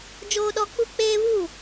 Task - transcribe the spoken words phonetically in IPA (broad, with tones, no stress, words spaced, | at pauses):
d͡ʒoː˦ɗɔ˦ k͡pu˦k͡peː˦βu˦˨